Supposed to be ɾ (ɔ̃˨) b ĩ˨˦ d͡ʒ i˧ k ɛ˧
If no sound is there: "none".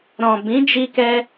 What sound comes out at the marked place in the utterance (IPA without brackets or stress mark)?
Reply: ɔ̃˨